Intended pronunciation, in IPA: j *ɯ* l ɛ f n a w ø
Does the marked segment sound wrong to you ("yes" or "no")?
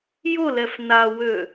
yes